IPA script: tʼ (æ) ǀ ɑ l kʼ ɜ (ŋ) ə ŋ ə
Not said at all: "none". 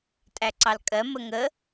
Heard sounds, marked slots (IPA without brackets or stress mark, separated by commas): æ, m